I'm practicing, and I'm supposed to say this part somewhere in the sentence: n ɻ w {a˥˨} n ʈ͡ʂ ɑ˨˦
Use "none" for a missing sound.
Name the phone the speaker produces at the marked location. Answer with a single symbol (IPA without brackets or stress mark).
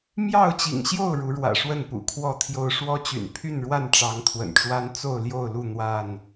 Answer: a˥˨